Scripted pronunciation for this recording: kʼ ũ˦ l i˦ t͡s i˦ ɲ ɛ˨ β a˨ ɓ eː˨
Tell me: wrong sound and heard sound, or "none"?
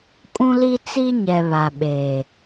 none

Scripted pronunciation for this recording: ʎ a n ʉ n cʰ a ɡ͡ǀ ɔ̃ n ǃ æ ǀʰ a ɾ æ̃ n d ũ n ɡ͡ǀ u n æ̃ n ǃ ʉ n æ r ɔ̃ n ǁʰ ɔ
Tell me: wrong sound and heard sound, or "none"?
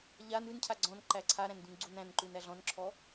r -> ɮ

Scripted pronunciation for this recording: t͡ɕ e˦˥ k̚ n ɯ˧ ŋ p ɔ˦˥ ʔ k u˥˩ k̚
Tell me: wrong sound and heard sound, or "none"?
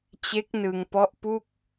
k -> p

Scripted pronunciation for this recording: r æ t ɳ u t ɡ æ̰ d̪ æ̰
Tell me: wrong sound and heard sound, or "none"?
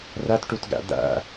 ɳ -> ʈ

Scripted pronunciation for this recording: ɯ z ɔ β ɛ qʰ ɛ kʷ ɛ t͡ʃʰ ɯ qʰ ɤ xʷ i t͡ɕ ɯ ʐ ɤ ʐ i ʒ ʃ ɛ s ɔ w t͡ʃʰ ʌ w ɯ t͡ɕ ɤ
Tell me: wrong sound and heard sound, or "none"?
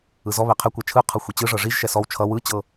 none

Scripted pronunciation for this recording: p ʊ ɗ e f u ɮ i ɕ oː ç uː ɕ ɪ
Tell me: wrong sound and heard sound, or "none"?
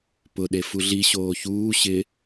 none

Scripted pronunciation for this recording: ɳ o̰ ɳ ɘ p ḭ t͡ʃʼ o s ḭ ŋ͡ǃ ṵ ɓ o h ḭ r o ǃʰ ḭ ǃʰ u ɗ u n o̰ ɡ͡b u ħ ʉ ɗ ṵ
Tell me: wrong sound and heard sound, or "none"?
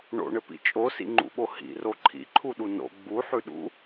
none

